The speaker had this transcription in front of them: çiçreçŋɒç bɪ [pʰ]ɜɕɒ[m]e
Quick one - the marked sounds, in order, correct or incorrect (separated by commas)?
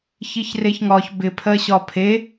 correct, incorrect